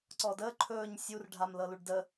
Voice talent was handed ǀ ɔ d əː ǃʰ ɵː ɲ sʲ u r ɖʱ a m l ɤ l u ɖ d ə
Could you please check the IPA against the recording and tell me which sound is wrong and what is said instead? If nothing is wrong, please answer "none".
none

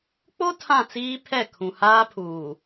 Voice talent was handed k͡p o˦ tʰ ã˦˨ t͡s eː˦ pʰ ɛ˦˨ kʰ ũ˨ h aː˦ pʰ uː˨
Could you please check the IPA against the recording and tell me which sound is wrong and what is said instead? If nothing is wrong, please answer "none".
eː˦ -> iː˦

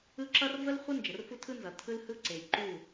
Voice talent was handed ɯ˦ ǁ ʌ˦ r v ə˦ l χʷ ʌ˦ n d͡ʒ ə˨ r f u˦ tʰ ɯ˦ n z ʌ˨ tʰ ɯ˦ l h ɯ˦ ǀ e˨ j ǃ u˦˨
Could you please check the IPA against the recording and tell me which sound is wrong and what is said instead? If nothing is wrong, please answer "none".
none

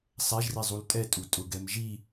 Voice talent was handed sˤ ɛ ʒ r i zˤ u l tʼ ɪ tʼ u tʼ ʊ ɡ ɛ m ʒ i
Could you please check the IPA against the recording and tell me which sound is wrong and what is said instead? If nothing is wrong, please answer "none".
ɪ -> ɛ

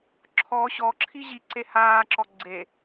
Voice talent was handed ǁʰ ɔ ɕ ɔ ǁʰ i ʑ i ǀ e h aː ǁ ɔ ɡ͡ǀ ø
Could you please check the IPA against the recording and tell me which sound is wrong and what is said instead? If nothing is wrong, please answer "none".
ø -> e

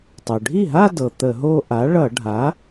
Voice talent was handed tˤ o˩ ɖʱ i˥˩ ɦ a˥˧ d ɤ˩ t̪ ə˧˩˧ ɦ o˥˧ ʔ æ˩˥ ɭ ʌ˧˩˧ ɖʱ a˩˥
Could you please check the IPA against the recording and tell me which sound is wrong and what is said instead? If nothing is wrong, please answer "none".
æ˩˥ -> a˩˥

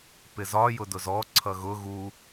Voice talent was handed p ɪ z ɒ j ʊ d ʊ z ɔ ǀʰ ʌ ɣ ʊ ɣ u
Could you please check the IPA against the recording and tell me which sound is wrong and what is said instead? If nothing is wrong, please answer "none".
none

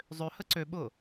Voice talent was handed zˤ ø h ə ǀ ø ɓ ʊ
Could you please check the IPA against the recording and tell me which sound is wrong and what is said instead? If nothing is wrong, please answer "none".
none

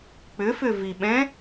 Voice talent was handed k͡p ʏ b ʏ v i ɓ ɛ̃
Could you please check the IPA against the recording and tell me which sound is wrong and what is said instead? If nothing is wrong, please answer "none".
b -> f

